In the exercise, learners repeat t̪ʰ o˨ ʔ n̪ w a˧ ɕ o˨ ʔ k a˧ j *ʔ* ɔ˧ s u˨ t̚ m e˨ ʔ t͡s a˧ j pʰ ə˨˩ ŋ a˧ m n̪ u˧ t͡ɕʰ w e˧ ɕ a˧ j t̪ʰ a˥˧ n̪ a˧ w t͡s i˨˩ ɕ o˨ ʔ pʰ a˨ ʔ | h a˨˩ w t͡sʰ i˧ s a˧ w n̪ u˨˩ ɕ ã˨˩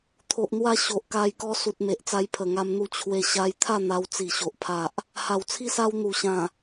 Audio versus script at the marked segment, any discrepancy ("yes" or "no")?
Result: yes